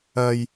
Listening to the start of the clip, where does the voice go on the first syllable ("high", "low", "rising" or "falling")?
low